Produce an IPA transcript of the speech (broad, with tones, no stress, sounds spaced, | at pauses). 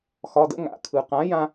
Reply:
x ɒ˩˧˩ d ə̰˥˧ ŋ a̰˩˧˩ kʰ ɯ˩ q ã˩˥ j ã˧